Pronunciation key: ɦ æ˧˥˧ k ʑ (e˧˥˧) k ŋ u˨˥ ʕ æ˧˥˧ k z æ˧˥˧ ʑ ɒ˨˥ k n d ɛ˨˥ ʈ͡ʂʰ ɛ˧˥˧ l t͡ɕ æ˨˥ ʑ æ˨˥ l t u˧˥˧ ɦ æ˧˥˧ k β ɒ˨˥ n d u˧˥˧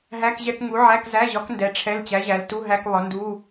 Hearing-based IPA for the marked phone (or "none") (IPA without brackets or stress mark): ɛ˧˥˧